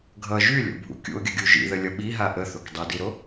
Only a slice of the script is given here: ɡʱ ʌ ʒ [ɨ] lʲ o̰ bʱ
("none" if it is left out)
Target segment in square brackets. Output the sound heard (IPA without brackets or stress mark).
y